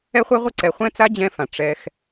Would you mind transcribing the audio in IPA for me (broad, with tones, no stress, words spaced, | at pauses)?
ɛ˧χʷɛ˧ʁʷɪ˧ ǀɛ˨χʷɛ̃˦ t͡sa˦d͡ʑɛ̃˧fã˨ ʈ͡ʂɛ˧x